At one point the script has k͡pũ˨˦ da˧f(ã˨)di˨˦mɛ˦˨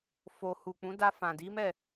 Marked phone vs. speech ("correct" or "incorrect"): correct